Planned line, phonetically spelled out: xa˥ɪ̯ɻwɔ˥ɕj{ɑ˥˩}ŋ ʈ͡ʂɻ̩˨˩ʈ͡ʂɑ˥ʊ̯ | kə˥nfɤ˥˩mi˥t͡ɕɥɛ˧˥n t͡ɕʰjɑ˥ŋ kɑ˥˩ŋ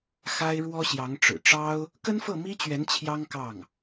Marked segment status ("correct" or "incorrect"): incorrect